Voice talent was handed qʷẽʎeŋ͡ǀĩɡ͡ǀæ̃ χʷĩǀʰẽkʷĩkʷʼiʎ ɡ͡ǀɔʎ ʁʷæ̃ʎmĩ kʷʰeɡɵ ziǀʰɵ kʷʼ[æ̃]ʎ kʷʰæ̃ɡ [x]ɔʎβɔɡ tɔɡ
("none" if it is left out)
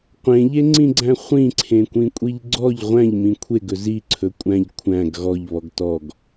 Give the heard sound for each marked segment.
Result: æ̃, ɣ

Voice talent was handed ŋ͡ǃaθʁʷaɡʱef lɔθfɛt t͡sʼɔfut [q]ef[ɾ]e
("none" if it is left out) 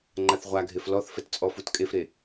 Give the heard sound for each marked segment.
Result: kʼ, ɾ

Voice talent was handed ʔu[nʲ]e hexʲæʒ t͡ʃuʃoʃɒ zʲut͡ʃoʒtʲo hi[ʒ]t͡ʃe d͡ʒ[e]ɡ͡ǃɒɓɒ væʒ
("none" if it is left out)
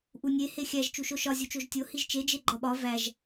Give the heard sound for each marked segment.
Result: nʲ, ʒ, e

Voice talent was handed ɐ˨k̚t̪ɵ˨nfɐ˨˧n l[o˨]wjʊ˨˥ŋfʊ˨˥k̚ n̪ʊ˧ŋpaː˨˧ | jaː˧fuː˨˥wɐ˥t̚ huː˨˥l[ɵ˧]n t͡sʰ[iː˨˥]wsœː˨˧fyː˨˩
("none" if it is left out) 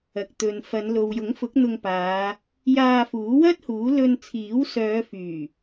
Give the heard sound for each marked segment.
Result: o˨, ɵ˧, iː˨˥

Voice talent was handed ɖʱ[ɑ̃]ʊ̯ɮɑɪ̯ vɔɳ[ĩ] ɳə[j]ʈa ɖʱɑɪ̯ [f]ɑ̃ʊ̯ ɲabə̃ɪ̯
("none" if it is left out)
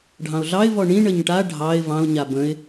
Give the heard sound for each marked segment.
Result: ɑ̃, ĩ, ɲ, v

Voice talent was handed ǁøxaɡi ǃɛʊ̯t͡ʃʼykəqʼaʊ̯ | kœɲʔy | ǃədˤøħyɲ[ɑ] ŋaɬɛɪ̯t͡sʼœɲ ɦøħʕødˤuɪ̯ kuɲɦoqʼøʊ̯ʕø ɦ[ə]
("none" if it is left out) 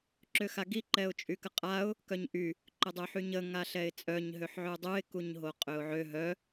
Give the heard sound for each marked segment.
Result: ə, œ

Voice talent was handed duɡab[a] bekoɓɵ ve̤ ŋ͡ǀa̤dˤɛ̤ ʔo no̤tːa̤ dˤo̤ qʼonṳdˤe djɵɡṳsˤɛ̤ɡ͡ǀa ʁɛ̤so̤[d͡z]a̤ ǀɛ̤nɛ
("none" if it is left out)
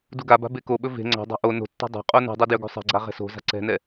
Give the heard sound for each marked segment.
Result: a̤, z

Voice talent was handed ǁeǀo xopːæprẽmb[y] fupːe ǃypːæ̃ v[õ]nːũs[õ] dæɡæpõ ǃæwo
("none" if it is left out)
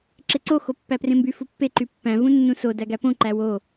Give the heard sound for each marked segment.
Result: y, ũ, o

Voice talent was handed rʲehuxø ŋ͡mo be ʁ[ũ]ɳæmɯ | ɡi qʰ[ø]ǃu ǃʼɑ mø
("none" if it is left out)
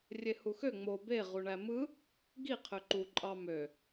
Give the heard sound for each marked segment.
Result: u, ø

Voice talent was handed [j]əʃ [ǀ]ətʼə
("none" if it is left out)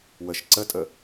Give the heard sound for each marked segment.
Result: w, ǀ

